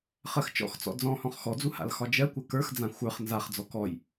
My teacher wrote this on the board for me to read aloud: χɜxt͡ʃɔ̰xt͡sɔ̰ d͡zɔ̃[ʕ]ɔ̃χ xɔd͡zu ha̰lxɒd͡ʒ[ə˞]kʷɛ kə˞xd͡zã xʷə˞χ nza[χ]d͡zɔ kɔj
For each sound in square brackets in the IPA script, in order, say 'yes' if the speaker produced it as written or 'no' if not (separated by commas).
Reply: no, no, yes